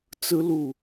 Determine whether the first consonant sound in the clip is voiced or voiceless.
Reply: voiceless